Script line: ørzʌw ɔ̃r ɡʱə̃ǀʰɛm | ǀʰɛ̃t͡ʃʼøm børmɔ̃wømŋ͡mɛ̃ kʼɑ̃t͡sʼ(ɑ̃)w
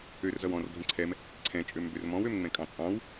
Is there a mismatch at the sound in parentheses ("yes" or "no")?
no